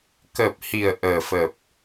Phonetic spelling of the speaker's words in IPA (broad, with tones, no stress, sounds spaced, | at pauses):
k əː˨˩ p̚ h i˨˩ ə̯ ʔ əː˨˩ f ə˨˩ p̚